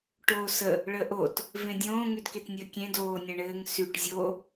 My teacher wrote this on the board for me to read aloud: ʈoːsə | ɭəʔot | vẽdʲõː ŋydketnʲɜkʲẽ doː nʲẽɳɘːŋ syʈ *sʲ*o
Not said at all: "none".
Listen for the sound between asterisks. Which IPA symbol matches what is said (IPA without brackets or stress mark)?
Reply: zʲ